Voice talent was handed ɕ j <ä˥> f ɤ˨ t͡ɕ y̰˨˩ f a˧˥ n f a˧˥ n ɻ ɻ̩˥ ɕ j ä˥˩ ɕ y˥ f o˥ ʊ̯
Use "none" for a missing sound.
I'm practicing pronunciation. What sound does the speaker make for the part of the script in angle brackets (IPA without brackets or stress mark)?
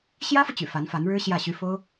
ä˥